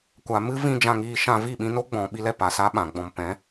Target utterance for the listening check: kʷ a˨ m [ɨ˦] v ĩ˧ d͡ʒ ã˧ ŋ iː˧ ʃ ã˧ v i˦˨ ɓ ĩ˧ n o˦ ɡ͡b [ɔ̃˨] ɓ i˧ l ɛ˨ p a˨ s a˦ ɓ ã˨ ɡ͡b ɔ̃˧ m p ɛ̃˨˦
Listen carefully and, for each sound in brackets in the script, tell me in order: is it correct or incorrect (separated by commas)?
correct, correct